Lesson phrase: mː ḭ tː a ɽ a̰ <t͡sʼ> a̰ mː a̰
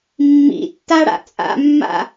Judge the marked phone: correct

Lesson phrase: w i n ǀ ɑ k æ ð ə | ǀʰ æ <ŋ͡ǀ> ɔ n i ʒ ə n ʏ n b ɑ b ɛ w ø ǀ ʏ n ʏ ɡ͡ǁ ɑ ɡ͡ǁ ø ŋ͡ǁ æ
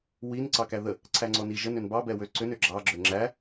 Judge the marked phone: correct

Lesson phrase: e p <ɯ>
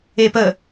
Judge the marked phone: incorrect: ə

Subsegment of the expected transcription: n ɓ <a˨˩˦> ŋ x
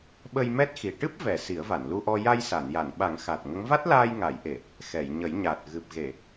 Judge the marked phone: correct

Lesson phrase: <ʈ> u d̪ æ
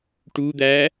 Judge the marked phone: correct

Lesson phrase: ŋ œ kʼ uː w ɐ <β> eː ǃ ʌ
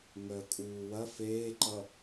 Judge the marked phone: incorrect: f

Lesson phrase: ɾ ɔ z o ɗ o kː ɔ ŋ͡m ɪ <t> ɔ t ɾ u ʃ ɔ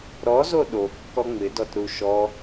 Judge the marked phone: incorrect: d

